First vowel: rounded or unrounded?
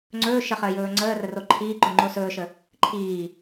rounded